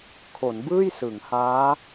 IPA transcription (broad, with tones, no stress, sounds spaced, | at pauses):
kʰ o˩˦ n b ɯː˥˩ j s ɯ˩˦ ŋ h aː˦˥